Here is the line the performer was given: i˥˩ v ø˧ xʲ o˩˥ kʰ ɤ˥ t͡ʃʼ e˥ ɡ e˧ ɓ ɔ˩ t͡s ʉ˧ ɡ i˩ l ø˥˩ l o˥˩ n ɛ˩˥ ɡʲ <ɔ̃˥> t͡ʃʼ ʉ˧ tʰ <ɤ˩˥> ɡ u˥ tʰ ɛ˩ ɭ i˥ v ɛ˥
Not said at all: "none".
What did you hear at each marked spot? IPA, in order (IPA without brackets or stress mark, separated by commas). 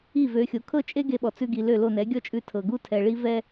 ɔ˥, ɤ˩